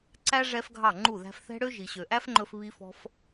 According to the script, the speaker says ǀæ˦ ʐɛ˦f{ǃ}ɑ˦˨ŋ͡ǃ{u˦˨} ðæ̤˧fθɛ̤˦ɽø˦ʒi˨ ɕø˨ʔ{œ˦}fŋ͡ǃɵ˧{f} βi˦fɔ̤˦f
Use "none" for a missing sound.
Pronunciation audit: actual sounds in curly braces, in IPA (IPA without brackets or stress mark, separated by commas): ɡʱ, u˦˨, æ˦, f